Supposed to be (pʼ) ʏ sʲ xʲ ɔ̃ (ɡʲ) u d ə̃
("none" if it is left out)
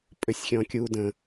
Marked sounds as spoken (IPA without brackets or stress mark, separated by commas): pʼ, kʲ